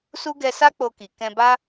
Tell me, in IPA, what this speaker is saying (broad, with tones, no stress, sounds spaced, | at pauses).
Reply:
s u˦ ɡ ɛ˧ s a˦ k͡p o˧ k i˨ k ɛ̃˧ b a˦